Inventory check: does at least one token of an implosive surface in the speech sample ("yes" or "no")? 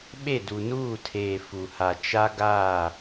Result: yes